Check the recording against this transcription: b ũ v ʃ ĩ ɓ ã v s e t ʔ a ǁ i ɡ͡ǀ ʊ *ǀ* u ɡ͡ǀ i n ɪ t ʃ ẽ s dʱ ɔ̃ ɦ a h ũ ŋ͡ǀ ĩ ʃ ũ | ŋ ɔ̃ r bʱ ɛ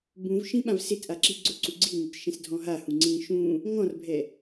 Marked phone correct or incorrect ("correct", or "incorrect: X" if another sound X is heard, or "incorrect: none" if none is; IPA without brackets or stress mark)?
correct